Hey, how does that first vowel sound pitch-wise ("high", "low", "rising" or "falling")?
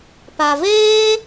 low